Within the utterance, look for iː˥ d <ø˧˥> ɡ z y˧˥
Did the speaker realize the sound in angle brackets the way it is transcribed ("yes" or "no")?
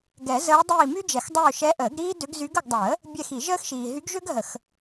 yes